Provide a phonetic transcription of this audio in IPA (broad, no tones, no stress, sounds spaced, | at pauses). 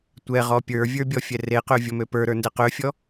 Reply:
tʷ ɛ ʁ ɔ pʲ ə˞ vʲ ə˞ bʲ ɔ fʲ ɛ r e q ø vʲ ɔ m ø p ə˞ ɾ ə˞ n d ɛ q ø fʲ ɔ